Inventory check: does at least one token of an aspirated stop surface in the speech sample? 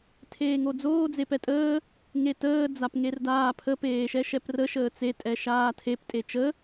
yes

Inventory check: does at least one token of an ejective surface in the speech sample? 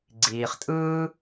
yes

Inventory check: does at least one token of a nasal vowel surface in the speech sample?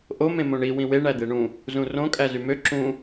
yes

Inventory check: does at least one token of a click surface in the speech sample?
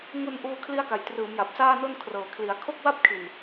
no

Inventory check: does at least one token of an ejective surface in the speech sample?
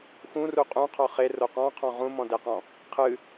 yes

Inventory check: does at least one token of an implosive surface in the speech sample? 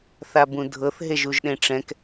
yes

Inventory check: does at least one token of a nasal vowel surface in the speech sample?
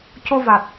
no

